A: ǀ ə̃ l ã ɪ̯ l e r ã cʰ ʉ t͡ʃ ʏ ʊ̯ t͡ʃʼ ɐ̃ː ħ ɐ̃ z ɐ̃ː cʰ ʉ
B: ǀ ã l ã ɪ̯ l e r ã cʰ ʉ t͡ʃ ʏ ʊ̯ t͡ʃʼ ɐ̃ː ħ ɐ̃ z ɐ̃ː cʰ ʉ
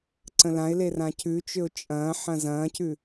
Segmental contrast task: A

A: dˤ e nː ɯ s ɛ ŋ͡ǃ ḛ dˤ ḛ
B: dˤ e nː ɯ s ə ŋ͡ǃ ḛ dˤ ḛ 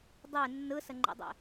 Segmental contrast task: B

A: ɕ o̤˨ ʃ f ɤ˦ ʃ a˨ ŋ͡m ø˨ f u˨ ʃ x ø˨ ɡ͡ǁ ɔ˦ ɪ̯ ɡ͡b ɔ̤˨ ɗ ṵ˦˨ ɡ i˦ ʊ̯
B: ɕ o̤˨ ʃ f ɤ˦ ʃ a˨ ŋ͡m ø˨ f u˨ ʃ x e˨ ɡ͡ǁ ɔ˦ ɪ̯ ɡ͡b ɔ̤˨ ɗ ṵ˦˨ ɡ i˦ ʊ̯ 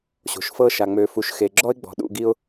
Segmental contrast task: B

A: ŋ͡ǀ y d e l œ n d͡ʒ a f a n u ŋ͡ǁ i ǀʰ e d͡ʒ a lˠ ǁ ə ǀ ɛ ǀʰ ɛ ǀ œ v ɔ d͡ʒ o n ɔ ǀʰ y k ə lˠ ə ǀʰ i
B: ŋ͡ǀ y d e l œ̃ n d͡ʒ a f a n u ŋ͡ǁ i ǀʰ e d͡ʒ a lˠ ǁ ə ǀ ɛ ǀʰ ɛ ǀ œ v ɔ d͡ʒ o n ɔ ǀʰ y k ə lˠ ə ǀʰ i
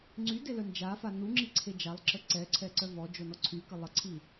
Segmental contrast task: A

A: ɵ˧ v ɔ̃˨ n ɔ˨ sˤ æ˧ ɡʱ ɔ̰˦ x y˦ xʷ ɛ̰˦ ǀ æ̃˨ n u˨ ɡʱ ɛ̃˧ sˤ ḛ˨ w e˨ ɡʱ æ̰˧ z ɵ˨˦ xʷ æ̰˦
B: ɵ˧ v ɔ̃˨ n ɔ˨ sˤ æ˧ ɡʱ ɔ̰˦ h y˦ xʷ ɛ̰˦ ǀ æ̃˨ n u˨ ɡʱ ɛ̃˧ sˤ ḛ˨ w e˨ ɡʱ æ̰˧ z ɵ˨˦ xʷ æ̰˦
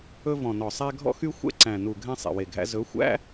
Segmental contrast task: A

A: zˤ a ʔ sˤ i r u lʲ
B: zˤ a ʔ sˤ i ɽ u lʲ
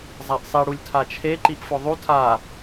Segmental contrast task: B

